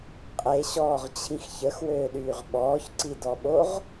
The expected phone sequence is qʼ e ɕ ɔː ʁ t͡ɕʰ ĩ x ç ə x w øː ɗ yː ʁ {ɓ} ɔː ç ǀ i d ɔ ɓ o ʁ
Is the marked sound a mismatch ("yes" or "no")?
no